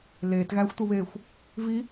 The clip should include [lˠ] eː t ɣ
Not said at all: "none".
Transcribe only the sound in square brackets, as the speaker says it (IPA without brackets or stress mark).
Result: l